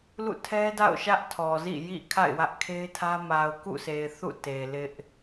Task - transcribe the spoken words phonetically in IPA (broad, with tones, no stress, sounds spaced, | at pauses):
l ṵ˦˨ tʰ ɛ˦ d a̰˦˨ ʊ̯ ʃ ä˦ ʔ tʰ ɔ˨ z ḭ˦˨ j ḭ˦˨ kʰ a̰˦˨ ɪ̯ w ä˦ ʔ kʰ e˦ ɪ̯ tʰ ä˦ m a˨ ʊ̯ k ṵ˦˨ sʰ e˨ ɪ̯ θ ṵ˦˨ t e˨ l ɪ˦ ʔ